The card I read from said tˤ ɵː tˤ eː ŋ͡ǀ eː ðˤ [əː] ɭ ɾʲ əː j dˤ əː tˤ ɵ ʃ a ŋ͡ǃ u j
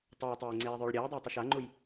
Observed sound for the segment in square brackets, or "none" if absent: ɵː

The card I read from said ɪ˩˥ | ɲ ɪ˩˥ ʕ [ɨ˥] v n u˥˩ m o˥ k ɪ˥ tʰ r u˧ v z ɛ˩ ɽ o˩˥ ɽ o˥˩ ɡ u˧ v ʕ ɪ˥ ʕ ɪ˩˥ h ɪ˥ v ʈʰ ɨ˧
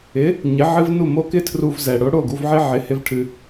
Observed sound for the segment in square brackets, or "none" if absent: ɨ˥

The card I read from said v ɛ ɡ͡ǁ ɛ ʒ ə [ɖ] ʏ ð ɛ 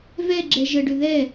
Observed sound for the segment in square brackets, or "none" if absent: ɖ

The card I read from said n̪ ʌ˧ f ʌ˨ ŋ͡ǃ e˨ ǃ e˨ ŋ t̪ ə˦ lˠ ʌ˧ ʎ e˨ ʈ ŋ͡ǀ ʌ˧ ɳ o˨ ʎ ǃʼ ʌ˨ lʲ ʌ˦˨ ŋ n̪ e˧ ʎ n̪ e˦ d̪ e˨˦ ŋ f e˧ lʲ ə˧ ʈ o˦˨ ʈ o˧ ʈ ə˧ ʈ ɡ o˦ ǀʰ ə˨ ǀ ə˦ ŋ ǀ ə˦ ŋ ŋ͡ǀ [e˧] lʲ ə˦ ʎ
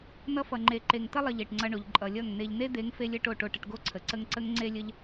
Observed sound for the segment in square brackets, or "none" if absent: e˦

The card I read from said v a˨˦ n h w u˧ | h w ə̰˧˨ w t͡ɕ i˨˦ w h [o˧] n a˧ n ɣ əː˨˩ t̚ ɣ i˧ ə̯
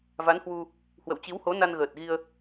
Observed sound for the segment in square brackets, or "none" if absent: o˨˦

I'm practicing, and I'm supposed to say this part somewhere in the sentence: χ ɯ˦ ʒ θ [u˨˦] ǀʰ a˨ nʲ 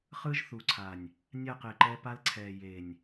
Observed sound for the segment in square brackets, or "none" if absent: u˨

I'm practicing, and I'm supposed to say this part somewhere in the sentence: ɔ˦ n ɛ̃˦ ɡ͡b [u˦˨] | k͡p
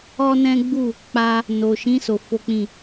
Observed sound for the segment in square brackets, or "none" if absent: u˦˨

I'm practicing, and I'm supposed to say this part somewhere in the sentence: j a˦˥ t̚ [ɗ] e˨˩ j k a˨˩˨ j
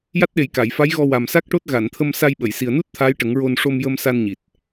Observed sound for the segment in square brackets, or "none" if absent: ɗ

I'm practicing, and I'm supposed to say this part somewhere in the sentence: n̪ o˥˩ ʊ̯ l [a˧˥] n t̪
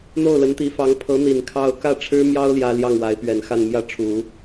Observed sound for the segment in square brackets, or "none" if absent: ə˧˥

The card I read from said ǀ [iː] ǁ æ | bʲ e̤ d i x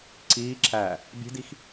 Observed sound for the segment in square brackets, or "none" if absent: iː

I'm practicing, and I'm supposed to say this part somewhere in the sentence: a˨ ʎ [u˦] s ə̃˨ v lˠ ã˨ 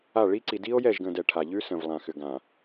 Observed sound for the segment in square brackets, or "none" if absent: ʉ˦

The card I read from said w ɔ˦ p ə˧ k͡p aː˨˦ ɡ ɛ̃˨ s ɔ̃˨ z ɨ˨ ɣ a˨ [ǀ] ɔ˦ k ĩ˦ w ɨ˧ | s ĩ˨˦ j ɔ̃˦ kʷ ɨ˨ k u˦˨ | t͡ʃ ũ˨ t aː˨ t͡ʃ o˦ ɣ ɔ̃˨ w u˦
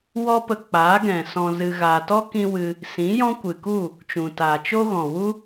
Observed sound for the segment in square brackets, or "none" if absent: t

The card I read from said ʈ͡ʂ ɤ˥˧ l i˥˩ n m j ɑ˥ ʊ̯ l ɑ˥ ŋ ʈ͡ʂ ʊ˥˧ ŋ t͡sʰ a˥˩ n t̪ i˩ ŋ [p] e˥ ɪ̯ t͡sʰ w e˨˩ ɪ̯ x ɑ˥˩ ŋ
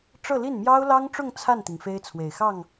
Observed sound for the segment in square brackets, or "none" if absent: f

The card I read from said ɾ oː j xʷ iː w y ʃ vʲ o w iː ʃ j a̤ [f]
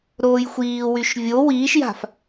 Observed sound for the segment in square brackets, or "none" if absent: f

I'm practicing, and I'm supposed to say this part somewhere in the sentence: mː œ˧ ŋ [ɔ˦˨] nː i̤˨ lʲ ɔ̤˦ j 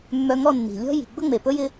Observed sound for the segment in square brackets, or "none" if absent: ɔ˦˨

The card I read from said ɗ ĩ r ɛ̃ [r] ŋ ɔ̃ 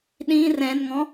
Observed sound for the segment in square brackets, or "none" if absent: n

